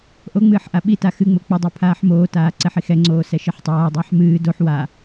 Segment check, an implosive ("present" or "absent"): present